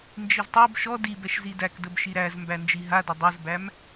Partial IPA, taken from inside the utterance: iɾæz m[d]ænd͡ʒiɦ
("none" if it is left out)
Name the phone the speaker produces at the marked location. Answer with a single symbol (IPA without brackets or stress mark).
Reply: b